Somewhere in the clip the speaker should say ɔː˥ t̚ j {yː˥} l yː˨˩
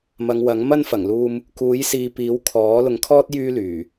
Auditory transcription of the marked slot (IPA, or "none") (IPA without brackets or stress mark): yː˥